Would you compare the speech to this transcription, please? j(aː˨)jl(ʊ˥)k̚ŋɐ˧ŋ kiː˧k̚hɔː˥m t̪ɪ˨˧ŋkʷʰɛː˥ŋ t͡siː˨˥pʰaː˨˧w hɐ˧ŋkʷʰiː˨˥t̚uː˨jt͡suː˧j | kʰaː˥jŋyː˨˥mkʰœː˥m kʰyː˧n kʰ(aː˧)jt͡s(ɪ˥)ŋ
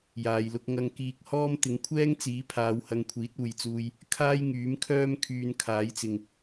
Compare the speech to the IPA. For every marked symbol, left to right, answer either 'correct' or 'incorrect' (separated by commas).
correct, incorrect, incorrect, incorrect